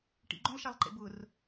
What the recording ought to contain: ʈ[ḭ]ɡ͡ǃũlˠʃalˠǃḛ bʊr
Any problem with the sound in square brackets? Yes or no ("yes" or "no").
no